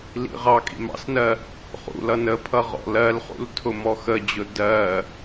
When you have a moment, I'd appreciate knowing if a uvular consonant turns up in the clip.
yes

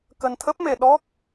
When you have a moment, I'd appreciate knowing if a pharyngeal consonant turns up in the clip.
no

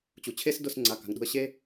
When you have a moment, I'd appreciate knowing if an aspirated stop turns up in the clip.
yes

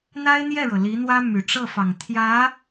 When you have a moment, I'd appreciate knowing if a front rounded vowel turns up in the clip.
yes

